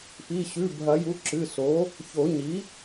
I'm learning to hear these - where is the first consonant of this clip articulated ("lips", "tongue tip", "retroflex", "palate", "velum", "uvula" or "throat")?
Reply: lips